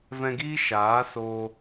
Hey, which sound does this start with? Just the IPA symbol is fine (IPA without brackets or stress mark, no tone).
v